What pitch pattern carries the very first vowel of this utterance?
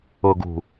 low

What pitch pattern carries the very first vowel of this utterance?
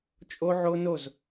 high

